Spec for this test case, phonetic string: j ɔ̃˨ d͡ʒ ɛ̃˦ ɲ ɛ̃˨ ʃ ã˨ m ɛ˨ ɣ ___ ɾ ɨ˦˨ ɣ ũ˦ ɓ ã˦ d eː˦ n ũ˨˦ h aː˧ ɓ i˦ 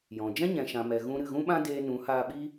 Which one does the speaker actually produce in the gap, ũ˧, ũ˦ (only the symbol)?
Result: ũ˧